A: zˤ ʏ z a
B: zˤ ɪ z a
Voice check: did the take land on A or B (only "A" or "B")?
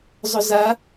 A